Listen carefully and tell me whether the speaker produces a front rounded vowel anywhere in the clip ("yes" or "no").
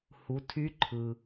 yes